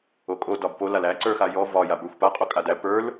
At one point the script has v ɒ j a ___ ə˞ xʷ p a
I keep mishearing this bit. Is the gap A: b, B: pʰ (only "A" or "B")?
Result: A